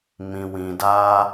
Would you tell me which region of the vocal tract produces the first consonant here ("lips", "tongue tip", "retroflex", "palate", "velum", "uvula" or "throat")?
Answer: lips